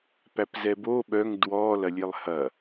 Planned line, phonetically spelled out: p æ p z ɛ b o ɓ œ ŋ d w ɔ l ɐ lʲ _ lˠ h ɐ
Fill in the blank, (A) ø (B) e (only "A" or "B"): B